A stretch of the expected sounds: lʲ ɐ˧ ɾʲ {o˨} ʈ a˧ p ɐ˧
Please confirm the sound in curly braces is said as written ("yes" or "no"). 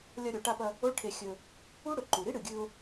yes